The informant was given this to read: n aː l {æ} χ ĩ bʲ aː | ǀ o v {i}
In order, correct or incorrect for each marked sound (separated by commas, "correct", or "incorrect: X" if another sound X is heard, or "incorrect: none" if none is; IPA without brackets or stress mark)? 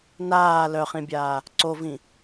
incorrect: œ, incorrect: ĩ